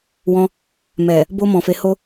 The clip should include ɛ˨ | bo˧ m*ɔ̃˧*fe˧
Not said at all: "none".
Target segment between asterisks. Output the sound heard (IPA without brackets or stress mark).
ɔ̃˧